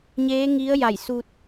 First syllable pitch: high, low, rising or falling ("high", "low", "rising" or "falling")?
rising